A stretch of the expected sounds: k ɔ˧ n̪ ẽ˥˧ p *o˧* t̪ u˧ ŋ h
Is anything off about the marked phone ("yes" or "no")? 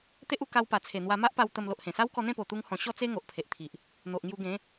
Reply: yes